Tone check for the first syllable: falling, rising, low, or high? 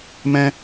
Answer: high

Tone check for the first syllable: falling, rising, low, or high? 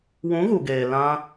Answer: rising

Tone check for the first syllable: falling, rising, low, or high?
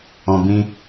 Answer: low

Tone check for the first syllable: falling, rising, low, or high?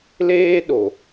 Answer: high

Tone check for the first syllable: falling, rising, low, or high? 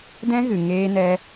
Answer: high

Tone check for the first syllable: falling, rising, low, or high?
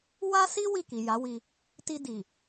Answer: high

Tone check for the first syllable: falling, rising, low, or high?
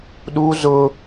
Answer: high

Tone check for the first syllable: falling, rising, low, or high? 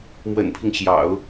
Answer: low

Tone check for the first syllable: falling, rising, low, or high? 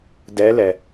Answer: rising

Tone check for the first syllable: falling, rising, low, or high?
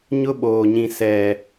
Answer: high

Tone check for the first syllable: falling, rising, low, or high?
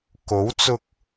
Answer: rising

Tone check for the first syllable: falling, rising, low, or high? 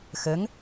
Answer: rising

